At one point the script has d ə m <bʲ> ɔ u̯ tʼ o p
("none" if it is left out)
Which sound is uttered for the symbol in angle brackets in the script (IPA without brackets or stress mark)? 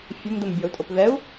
bʲ